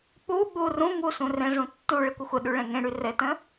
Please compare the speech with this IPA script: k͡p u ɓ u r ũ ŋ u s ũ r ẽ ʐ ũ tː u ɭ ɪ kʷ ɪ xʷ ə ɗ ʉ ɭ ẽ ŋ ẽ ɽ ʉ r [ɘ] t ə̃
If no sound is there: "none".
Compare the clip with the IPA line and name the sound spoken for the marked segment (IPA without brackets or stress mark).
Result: ɘ